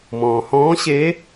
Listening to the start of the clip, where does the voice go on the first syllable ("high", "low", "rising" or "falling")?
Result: low